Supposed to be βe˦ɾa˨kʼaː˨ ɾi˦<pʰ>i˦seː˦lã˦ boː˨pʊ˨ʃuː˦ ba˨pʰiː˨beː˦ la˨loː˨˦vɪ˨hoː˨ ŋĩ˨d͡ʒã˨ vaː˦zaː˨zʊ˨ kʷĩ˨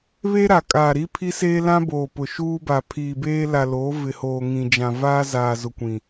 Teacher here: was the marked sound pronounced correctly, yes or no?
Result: yes